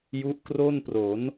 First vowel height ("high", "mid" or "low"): high